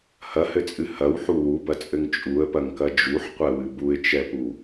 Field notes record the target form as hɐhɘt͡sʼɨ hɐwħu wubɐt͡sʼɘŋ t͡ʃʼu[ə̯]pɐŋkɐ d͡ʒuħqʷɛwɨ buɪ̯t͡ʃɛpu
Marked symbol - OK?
yes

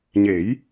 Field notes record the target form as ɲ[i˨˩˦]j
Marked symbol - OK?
no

